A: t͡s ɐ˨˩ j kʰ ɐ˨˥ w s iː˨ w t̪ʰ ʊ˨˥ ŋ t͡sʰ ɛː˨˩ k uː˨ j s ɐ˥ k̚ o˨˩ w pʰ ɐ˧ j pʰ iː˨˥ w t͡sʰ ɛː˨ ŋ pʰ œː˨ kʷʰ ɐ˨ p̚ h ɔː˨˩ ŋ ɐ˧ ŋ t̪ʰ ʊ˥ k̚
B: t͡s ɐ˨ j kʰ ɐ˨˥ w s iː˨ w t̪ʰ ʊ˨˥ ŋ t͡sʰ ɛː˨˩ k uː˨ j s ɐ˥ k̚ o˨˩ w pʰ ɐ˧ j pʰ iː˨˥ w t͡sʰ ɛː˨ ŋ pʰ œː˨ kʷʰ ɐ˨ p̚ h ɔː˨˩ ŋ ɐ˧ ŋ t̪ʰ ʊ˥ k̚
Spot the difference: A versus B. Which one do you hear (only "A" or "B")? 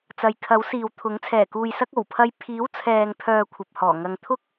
B